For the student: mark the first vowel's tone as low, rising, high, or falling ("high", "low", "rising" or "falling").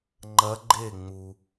rising